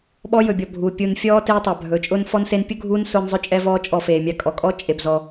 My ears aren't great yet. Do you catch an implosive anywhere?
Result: yes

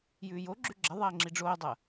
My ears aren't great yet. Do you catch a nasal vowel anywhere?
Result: no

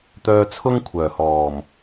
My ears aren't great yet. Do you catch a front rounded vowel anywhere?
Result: yes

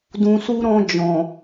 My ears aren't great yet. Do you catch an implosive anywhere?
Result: no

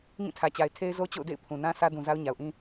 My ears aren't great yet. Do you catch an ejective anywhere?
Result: no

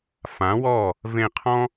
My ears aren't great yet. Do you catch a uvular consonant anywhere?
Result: yes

